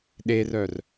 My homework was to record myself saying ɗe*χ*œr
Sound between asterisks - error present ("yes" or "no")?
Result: yes